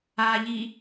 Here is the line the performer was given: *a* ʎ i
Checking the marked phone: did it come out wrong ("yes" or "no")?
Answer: no